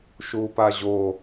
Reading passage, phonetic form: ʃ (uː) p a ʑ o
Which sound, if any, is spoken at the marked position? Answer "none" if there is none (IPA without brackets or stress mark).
uː